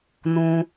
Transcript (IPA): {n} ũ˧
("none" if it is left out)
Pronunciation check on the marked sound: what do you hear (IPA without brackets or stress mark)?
n